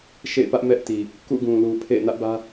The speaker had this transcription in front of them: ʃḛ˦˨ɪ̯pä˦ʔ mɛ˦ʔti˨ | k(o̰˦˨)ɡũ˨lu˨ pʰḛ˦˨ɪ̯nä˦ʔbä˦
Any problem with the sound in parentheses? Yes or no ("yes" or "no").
yes